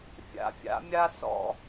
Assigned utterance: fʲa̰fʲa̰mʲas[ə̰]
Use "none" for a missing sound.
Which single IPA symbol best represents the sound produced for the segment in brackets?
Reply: ɔ̰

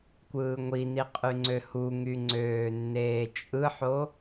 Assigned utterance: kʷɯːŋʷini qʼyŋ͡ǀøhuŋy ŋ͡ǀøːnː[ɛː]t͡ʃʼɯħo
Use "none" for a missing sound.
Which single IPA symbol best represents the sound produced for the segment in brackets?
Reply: eː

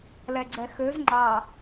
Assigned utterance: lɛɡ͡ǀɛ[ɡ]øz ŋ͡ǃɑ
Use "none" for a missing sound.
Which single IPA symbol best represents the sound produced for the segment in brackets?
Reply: x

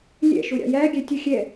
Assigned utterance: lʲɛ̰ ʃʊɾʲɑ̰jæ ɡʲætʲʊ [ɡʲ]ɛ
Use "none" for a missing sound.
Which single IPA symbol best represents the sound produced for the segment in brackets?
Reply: xʲ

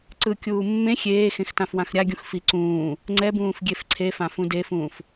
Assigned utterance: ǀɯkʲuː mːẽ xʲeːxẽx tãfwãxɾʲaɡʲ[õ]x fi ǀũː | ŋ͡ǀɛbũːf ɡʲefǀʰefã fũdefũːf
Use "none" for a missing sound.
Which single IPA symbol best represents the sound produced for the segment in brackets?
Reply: ũ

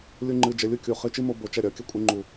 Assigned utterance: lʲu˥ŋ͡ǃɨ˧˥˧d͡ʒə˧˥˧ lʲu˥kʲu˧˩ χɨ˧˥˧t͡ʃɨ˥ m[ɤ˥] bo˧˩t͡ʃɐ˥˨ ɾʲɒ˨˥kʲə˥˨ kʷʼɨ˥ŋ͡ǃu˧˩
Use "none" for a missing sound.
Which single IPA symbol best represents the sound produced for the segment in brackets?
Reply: o˥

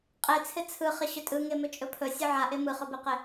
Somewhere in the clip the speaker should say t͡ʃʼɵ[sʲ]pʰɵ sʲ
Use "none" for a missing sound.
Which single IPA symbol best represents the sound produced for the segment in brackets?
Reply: none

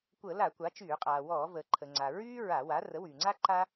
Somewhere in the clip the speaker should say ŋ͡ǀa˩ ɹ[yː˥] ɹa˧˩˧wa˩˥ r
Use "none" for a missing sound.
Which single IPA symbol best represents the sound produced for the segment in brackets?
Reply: yː˥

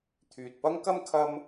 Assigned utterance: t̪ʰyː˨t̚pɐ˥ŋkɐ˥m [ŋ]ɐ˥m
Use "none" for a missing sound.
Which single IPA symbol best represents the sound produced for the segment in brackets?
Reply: kʰ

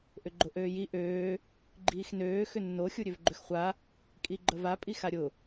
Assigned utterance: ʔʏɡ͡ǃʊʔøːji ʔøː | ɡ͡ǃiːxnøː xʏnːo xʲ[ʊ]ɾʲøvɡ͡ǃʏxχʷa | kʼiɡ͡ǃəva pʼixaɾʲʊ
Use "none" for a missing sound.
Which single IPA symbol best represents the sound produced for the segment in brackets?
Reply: u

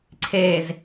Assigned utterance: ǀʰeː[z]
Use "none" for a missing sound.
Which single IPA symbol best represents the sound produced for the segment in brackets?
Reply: z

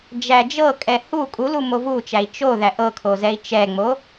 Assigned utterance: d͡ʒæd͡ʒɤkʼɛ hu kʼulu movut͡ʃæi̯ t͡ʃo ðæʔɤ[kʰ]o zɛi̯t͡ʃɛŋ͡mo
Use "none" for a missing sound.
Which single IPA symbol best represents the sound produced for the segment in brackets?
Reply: kʰ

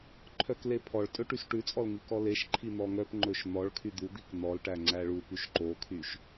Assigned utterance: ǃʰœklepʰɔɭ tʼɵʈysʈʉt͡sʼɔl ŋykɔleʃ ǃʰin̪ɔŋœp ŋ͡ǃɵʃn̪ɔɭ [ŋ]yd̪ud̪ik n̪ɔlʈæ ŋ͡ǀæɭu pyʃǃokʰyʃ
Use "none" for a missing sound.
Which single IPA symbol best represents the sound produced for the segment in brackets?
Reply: kʰ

